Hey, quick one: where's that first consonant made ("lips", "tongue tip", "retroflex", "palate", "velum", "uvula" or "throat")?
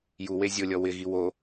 palate